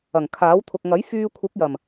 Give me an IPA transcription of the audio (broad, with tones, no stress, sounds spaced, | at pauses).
ɐ˨˩ ŋ kʰ aː˨˥ w t̪ʰ ʊ˨ k̚ ŋ ɐ˨˥ j f yː˧ kʷʰ ɪ˨˥ k̚ j ɐ˨˩ m